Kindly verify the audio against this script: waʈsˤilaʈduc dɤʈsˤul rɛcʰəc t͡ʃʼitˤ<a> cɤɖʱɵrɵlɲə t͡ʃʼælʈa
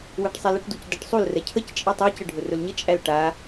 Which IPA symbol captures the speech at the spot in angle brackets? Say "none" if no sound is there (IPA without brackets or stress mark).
æ